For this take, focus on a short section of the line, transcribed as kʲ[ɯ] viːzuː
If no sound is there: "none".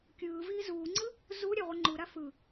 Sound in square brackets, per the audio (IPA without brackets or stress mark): ɯː